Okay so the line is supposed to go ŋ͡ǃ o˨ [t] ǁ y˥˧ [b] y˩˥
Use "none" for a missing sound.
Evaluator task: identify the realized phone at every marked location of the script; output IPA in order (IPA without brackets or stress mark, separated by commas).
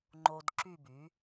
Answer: d, b